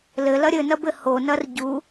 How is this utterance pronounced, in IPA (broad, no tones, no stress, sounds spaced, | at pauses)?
l ɘ l ɐ ɾʲ ɘ n ɐ b ɘ h o n ɐ r ɟ u